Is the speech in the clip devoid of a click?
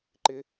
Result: no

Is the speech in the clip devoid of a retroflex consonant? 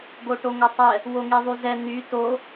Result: no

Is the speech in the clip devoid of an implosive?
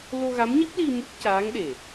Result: no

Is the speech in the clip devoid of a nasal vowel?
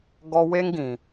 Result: no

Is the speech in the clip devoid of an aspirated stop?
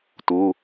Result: yes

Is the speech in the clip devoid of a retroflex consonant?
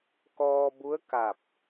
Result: yes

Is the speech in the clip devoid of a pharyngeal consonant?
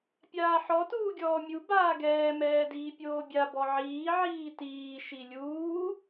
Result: no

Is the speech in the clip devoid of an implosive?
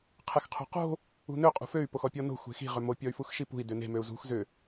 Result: yes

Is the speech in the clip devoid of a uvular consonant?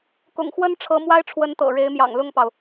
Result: yes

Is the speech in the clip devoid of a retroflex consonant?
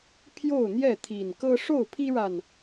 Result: no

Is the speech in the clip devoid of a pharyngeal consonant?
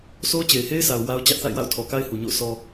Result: yes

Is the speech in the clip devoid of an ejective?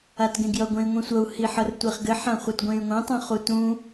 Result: yes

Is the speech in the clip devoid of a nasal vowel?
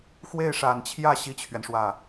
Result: yes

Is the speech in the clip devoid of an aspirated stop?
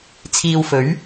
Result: no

